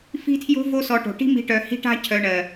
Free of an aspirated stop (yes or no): no